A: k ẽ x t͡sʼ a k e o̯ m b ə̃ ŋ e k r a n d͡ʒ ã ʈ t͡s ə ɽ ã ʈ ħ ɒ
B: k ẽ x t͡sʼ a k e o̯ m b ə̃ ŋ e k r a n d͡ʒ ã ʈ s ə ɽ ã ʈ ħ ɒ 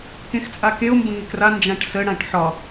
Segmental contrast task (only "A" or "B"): B